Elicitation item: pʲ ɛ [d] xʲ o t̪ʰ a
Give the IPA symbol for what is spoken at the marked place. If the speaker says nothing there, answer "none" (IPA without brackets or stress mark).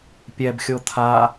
b